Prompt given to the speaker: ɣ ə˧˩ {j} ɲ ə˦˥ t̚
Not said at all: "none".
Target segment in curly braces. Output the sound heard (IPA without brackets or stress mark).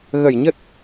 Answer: j